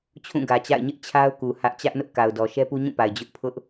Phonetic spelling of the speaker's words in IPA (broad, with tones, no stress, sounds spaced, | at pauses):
t͡ɕʰ ũ˦˨ ɡ ä˨ t͡ɕ a̰˦˨ ɪ̯ ɲ ɪ˦ ʔ t͡ɕʰ a˦ ʊ̯ k u˨ h ä˦ ʔ t͡ɕ ä˦ ʔ n ʊ˦ ʔ k a˨ ʊ̯ d ɔ˨ ʃ ɛ˦ p u˦ ɲ ũ˦˨ p a˨ ɪ̯ d͡ʑ ʊ˦ ʔ pʰ ʊ˦ ʔ